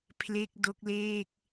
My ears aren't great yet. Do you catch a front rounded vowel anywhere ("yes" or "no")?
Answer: no